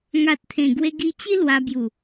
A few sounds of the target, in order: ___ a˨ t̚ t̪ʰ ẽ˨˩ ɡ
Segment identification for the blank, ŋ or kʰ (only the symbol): ŋ